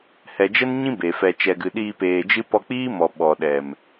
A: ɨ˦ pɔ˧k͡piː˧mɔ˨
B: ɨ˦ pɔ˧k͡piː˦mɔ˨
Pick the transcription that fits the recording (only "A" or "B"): B